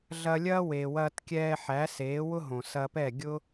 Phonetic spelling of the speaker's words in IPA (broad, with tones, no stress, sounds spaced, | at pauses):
ɮ ɐ˧ lʲ ɐː˥ w eː˩ w ɐː˧ t kʲ ɛː˧ ħ æ˩˥ s eː˩˥ w ʊ˥ ɦ õ˩ s ɐ˧ p ɛ˥˩ ɡʲ ʊ˥